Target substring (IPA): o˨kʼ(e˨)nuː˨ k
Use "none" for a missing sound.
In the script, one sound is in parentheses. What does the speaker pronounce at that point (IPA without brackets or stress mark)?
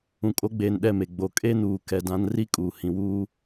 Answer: e˦